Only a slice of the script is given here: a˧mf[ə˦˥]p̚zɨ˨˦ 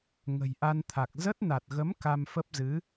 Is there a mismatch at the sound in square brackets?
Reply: no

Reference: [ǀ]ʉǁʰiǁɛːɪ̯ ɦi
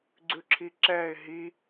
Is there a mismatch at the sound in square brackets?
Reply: yes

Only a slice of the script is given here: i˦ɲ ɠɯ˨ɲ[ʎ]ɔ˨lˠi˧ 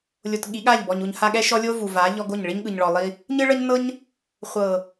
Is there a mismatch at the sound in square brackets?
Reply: yes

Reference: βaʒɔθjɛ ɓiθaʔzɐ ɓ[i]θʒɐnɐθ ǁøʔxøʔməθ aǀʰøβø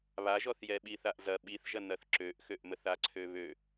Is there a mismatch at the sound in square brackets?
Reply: no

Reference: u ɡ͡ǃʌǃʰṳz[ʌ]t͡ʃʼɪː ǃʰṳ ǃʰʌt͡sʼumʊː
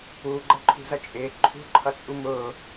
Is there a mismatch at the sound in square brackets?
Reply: no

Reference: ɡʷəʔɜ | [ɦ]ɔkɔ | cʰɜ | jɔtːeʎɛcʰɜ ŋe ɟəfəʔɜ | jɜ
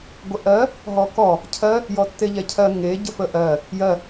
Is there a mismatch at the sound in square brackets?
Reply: no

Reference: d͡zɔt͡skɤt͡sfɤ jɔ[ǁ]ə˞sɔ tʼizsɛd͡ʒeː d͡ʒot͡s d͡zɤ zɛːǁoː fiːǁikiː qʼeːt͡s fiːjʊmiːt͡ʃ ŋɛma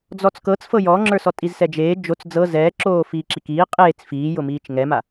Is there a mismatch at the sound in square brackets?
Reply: yes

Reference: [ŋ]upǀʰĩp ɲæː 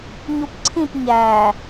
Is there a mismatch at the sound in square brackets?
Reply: yes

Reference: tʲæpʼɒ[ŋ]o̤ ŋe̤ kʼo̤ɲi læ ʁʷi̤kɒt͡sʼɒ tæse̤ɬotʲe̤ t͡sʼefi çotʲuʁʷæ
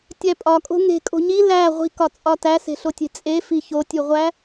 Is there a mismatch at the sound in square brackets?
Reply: yes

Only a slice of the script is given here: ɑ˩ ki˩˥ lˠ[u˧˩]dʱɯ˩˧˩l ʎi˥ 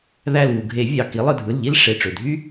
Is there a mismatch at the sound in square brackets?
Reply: yes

